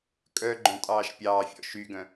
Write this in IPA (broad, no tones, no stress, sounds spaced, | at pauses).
kʼ œ ɡ͡ǃ œ̃ tʼ ɑː ʃ pʲ ɑː fʲ ɔ̰ ʃ y ɡ œ̃